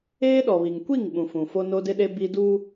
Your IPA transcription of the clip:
eː˦ ɗ ɔ˨ β i˨ ŋ kʷ i˦˨ ŋ ɓ ũ˨ f ũ˨ f o˦ n o˦ d ɪ˦ ɗ e˦ b i˦ d uː˦

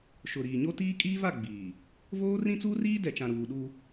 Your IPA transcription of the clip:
ʃ ʊ˨ ɾ iː˨ ɲ o˦ t iː˦ kʼ iː˦ v a˦˨ ɡ͡b iː˨ | v oː˦ r ĩ˦ t͡s uː˦ r iː˦ d ɛ˨ t͡ʃ ã˨ ɾ uː˨ ɗ u˦

